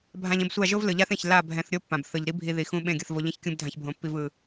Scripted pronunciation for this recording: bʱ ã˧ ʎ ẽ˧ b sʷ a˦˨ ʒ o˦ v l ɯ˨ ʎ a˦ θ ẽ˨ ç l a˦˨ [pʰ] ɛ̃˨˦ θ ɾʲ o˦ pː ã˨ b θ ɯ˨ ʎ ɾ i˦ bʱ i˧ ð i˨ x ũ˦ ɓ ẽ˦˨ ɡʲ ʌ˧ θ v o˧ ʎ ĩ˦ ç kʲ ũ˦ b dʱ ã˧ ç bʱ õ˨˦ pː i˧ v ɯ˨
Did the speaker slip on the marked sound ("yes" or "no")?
yes